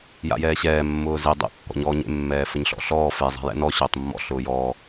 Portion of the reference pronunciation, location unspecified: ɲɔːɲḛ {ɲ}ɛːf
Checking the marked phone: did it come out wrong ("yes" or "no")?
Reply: yes